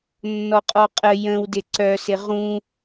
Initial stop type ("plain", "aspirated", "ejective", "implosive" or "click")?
ejective